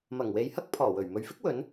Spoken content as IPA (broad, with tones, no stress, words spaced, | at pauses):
mɐ˨˩ŋwe˨jhɐ˥k̚ pʰɔː˨˩wɵ˨˩ɥ mɵ˨ɥfɪ˥k̚wɵ˨˧n